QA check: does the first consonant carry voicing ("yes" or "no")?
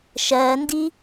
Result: no